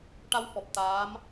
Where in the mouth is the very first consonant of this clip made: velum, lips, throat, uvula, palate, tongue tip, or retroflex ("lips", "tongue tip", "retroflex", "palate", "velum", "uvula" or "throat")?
retroflex